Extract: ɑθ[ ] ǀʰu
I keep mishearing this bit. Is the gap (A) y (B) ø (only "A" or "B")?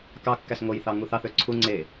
B